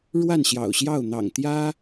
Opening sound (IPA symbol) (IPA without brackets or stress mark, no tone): ɻ